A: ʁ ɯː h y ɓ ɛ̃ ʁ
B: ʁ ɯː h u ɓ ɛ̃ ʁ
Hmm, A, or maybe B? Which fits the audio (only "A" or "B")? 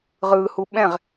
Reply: B